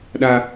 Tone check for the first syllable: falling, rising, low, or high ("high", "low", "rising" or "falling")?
high